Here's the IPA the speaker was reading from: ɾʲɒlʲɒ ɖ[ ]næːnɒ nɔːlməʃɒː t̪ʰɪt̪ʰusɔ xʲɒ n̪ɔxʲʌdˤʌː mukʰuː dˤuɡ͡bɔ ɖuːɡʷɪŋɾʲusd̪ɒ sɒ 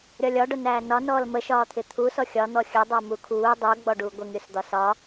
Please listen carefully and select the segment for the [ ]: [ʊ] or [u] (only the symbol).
ʊ